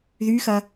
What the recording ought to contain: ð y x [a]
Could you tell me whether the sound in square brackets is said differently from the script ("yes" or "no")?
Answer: yes